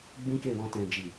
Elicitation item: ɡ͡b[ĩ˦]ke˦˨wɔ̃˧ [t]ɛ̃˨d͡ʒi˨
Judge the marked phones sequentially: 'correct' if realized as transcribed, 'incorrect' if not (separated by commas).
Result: correct, correct